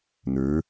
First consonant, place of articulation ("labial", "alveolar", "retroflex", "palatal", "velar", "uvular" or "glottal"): alveolar